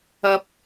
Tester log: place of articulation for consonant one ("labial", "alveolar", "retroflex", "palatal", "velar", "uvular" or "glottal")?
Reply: labial